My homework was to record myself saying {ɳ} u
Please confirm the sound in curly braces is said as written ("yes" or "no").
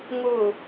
no